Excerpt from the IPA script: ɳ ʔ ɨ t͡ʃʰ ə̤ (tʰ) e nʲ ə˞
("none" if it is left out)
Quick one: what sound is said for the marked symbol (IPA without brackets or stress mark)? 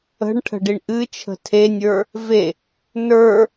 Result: tʰ